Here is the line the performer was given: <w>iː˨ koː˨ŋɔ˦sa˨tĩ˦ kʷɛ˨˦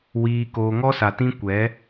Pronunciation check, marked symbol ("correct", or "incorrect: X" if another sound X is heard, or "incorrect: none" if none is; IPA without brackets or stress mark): correct